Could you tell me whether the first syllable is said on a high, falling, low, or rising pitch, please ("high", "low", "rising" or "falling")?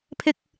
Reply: high